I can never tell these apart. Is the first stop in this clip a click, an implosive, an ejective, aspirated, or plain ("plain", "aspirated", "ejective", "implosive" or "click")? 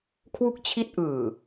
aspirated